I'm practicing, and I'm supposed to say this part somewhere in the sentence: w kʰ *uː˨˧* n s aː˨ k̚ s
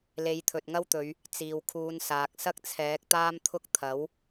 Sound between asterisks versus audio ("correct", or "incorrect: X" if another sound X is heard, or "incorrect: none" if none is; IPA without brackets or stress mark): correct